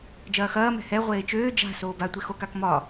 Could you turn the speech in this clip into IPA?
d͡ʒ ɐː x ɐː m ɛ̤ h ɛ ʁʷ eː t͡ʃ øː d͡ʒ a̤ s oː b a tʷ e x o k a k m ɒ

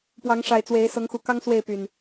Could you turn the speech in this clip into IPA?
p w ɑ˨˦ ŋ ʂ a˨˩ ɪ̯ t͡s w e˨˦ ɪ̯ s ɤ˨˦ ŋ x u˨˩ k ɑ˦ ŋ s w e˥˨ ɪ̯ p y˨˩ n

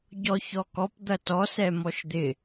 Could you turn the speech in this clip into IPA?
ɟ ɔ ç ɔ k ɔ p d̪ ɐ t ɔ s ɛ m ɔ ʃ d̪ ɪ

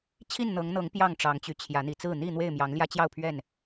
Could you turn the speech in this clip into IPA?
t͡ɕʰ i˥˨ n n̪ ɤ˨˦ ŋ n̪ ɤ˨˦ ŋ p j ɑ˥˨ ŋ ʈ͡ʂ ɑ˨˦ ŋ t͡ɕ y˨˦ t͡ɕʰ j ä˨˦ n̪ i˨˩ t͡s ɹ̩˥˨ n̪ i˥˨ n̪ w e˥˨ ɪ̯ m j ɑ˨˦ ŋ l j ä˦ t͡ɕ j ɑ˥˨ ʊ̯ pʰ ɥ ɛ˥˨ n

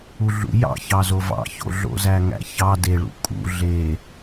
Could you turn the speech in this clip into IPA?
u ɮ ṵ j ɑ̰ ç ɑ z o v ɑ̰ ç o̰ ɮ o̰ z æ ŋ æ̰ ç ɑ d e ɭ ṵ kʼ ṵ ɮ e

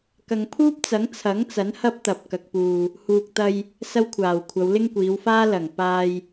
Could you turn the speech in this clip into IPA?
k ɐ˨ ŋ pʰ uː˥ p̚ t͡s ɐ˨˥ ŋ t͡sʰ ɐ˨˥ ŋ t͡s ɐ˨˥ n h ɐ˥ p̚ t̪ ɐ˨ p̚ k ɐ˨ k̚ p uː˨ | h uː˨ k̚ t̪ ɐ˧ j | s ɐ˥ w kʷʰ aː˨˩ w kʷʰ ɐ˨˧ w l ɪ˥ ŋ kʷ iː˨˧ w f aː˥ l ɐ˨˩ ŋ p aː˧ j

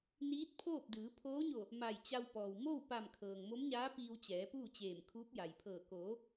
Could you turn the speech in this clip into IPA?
n iː˧˥ t̚ pʰ oː˥˨ p̚ d ɯː˩˧ pʰ oː˧˥ ɲ o˧˩ | m a˧˩ j t͡ɕ a˧ w p ɔː˩ w m o˥˨ w p a˧˩ m kʰ ɤː˩ ŋ m o˧˥ m ɲ aː˧˥ p iː˧ w t͡ɕ ɛː˩˧ p uː˥˨ t͡ɕ eː˧˩ m kʰ uː˧˥ p̚ j a˩ j pʰ ɤː˧˩ k oː˩˧

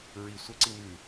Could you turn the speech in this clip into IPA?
ɹ i sʷ ɐ ǀ i m ʉ

